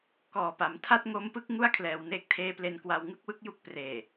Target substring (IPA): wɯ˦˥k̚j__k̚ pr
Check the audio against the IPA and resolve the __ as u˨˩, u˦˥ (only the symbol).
u˦˥